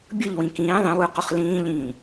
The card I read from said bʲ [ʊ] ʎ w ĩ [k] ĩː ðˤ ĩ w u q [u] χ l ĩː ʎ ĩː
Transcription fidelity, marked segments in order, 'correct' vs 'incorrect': incorrect: ɯ, correct, correct

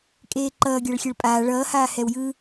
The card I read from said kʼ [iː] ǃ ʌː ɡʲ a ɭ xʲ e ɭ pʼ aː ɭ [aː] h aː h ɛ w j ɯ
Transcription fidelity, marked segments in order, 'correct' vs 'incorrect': incorrect: eː, incorrect: ʌː

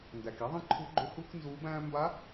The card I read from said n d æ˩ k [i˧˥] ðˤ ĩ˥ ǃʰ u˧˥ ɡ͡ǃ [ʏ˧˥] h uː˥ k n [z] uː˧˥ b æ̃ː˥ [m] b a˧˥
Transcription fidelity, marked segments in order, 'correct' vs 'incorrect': incorrect: i˥, correct, correct, correct

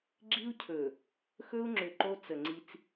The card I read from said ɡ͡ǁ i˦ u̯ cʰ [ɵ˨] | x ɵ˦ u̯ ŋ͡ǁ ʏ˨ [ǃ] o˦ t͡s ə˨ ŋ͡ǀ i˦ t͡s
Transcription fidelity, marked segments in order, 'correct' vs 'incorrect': correct, correct

